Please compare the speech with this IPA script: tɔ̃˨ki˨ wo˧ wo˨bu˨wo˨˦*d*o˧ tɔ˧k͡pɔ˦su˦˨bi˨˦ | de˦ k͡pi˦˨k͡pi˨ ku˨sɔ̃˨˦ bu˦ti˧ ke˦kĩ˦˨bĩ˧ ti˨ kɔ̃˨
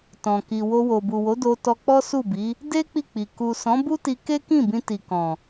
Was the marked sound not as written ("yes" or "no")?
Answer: no